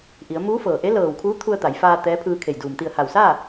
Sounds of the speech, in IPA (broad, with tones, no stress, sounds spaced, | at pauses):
ʔ i˩˧ ə̯ m uː˧˥ f ɤː˩ ʔ e˧˥ l ɤː˧˩ w kʰ uː˧˥ t̪ʰ u˧ ə̯ t̪ a˩˧ j f aː˧ t̪ ɛː˧˥ pʰ ɯː˧ kʰ e˧˩ j d uː˩ m t̪ i˧˩ ə̯ h a˧˩ w s aː˥˨